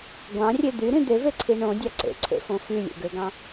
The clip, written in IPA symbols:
ɡʷɑ̃rʲe d̪yɾĩ d̪eveǀʰi ɳõdʲɑ ǀḛǀʰḛfõ fylʲḛɡøɡɑ̃

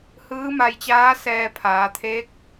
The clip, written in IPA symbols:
hɯː˧˥ma˧jt͡ɕaː˧˥sɛː˧ pʰaː˩˧t̪ʰeː˧˥k̚

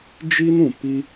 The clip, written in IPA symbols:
d͡ʒi˧n ũ˨pi˦

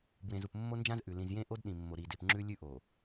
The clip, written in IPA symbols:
bwẽ˨zu˨p mːo˦nd͡ʒã˦zʔʉ˨ lĩ˨z jẽ˦ʔo˦dɗĩ˨mːo˨ ɾi˨de˨p ŋ͡ǁʉ˦lʲʉ˦ʔo˨

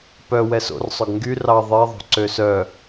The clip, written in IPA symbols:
pœ wɛso̰rsˤœɡ ŋɡy rɑ ðˤe ðˤo̤ǀøsœ

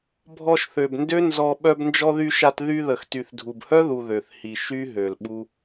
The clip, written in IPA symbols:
bʱɔ˧ʃθø˨bndø˦ nzɔ˧ ɓœ˧bnd͡ʒɔ˧ðy˧ʃa˧t ðy˧ðə˨x ty˨θdʱu˨bhœ˦ðu˨ ðø˨θhi˨ ʃy˦ɦø˨lɓu˦

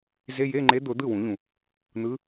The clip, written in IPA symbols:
ze˧˥˧je˧˥˧ŋ͡ǃe˧˥ d̪ʊ˨˩˦ d̪ɯ˥˩wũ˨˩˦ʎũ˩ | n̪ɯ˧˥

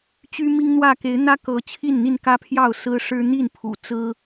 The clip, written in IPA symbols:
t͡ɕy˦mi˦ŋn̪wä˥˨ ke˨˦ɪ̯n̪ä˦kɤ˨˦ t͡ɕʰi˥˨nn̪i˥˨nkä˦pʰjɑ˥˨ʊ̯ sɹ̩˦ʂɻ̩˦ n̪i˥˨npʰṵ˨˩t͡sɹ̩˦

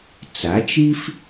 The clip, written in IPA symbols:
t͡sa˩˥t͡ʃi˥f

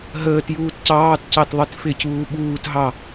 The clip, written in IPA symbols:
ɦəːtjuːt cɑːtcɑtðˤit fɪcuː ɓuːtɦɑ

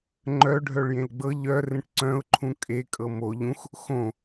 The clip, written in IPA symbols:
ŋ͡ǃœ ɖʱœɭjẽlɡ͡bɤ ʎœ rẽʈǀœ̃ʊ̯ǃʰũ kʼekʼɤ mo ʎũx | xõ

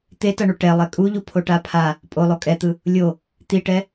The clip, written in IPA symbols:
t̪etʌɳu ʈɛlˠɛ kʼuʎupʰoʈa pʰa | pʼolˠo kʼɛt̪ɯ | lʲo | t̪iʈɛ

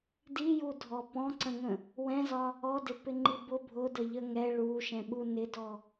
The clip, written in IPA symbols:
dijudʱɔ pɔ̃ǀə̃ŋə̃ | wɛ̃zɒ | ɔdɪpɪŋ͡ǃi bʊ bʱʊdəʎə ŋɛ ɭuʃɛ̃ɓu nɪdɔ

